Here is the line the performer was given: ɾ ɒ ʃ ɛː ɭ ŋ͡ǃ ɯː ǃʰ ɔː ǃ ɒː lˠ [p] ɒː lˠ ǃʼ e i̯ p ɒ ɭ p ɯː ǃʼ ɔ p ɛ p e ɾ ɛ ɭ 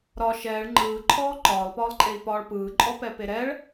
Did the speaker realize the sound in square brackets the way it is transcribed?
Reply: yes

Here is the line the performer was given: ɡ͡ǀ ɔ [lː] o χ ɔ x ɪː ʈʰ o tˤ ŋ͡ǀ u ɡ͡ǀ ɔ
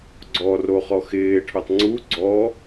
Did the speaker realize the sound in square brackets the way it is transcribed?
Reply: no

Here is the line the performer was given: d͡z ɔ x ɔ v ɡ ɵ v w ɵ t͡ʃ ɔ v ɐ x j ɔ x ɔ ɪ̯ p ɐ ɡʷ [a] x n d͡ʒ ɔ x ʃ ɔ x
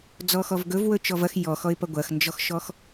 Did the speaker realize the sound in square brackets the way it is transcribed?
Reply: no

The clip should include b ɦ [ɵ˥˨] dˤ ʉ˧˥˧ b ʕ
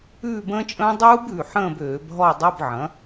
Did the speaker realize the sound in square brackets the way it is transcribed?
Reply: no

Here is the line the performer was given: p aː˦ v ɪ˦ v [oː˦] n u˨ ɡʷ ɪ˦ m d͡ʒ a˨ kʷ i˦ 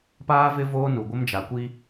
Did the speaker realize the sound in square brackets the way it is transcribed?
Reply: yes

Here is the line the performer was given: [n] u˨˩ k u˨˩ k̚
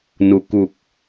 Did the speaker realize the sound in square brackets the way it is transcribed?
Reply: yes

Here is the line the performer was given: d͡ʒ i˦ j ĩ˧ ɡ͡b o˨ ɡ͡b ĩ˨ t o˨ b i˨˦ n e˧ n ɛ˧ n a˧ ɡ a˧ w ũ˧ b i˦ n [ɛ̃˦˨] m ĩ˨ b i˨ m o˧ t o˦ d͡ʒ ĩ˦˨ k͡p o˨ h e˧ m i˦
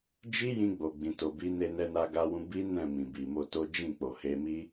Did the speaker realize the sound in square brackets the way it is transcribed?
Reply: yes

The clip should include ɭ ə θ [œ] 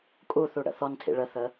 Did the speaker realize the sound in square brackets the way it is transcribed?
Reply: no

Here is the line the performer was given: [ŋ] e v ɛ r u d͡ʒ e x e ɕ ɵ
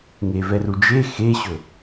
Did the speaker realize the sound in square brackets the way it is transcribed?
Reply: yes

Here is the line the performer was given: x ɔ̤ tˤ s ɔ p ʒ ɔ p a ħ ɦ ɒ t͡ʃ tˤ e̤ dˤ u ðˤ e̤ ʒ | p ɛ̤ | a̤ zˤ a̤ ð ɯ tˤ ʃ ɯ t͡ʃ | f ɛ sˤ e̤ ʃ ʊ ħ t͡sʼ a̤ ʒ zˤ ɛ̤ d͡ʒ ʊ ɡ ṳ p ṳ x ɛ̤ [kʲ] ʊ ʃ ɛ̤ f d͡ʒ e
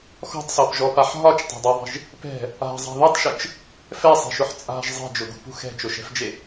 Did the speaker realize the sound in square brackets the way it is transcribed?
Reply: no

